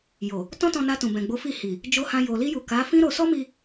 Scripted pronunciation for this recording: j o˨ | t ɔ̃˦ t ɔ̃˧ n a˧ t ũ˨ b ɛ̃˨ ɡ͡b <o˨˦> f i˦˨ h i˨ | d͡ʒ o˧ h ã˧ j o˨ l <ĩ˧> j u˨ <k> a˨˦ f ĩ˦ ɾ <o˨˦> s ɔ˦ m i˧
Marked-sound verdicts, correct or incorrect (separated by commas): correct, incorrect, correct, incorrect